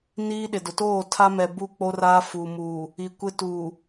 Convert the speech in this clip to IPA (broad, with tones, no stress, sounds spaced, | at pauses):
n iː˦ ɗ ɪ˨ d ʊ˨ t oː˦˨ tʰ a˦ m ɛ˨ b u˦ k͡p o˦ r aː˦ f uː˨ m uː˨ | i˨ kʷ ɪ˦ t uː˨